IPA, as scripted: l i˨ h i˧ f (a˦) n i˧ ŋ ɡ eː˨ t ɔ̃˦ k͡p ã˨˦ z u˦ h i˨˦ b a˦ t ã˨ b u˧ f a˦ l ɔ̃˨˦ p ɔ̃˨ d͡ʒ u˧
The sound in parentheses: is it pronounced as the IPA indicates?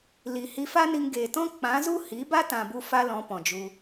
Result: yes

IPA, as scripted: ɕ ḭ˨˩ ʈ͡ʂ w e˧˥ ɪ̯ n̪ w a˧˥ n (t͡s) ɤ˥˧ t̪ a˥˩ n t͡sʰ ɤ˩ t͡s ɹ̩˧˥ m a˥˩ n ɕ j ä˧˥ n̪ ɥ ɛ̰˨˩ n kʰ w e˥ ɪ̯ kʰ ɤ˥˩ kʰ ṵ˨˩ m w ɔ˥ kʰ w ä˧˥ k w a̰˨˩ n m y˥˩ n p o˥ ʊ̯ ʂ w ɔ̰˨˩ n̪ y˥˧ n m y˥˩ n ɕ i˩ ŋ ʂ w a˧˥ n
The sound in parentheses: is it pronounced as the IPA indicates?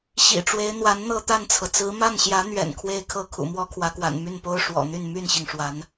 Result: no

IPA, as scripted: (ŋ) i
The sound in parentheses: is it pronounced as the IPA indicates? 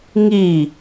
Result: yes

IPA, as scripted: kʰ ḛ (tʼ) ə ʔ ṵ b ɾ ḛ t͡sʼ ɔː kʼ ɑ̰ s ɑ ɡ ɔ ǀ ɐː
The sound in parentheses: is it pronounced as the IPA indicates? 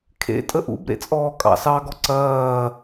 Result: yes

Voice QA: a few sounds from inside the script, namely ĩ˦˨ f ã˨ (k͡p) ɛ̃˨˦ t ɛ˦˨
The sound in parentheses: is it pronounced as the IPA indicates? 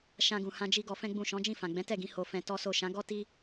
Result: no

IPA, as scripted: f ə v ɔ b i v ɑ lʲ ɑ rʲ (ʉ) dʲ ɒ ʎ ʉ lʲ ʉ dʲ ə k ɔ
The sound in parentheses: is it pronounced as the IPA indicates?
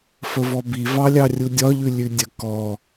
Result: no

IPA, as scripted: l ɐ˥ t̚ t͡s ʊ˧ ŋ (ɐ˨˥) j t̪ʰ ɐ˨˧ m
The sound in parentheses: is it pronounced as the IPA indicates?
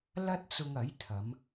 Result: yes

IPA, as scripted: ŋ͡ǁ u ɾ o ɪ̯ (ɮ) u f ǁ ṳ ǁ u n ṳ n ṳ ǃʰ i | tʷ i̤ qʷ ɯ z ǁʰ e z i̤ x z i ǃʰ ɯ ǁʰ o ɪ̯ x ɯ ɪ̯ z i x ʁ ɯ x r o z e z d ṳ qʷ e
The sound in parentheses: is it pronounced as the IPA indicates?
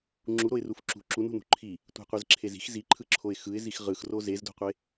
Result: no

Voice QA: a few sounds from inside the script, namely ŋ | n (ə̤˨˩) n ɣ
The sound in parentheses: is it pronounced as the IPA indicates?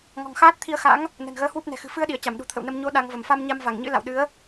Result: yes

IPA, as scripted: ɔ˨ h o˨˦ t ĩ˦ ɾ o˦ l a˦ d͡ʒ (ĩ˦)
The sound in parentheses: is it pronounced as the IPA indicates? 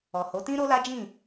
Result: no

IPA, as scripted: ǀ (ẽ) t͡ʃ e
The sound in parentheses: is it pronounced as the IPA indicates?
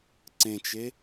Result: yes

